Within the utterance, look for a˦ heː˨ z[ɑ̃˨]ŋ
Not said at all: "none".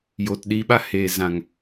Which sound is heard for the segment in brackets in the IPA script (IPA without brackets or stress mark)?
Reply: ã˨